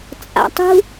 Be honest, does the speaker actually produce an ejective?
yes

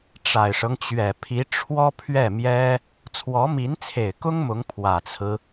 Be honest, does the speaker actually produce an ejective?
no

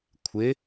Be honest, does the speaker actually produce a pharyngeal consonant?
no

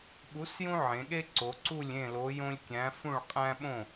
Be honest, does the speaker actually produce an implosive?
yes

